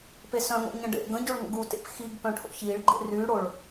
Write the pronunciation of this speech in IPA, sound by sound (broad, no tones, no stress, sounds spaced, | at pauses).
p e s œ̃ ŋ o̰ ɲ ə̃ ɖ ḛ ɡ ə̃ ɟ o ɭ ŋ ə̰ ɡ u t ḛ p x i ɡ p œ̃ ʈʰ o̰ ç i ɭ ɡ͡ǃ ḛ r y ɽ o ɭ